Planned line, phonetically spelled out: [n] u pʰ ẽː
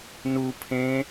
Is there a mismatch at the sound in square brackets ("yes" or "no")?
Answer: no